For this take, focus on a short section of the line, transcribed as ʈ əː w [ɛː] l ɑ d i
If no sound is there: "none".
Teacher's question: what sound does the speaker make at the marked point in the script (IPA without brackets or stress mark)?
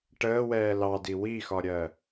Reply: ɛː